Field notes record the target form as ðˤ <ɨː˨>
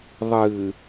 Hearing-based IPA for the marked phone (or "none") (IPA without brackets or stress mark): ɨː˨